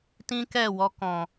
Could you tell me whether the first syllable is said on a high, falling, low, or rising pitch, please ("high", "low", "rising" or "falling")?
high